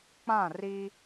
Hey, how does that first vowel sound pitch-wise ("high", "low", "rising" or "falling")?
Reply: falling